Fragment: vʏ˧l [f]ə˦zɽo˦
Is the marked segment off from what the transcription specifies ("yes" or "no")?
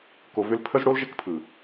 yes